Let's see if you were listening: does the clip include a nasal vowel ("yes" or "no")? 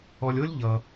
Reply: no